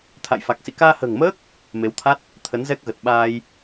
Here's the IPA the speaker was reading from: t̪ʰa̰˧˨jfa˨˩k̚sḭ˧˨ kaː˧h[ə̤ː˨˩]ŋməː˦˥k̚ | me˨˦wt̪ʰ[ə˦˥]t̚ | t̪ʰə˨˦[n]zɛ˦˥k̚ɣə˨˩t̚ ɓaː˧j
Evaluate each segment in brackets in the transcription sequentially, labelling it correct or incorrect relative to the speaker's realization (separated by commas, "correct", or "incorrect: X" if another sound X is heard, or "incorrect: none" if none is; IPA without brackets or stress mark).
correct, incorrect: a˦˥, correct